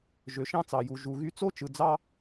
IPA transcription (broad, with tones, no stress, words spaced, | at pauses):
ʒø˩ʃɑ̃˥t͡sɑ˩ju˩ ʒu˩ɣy˥ t͡so˥t͡ʃɯ˩ d͡zɑ˥